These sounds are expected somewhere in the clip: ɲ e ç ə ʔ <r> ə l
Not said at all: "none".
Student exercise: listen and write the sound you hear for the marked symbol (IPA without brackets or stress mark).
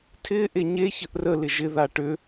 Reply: r